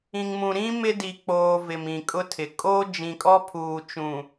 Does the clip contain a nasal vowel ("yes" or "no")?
yes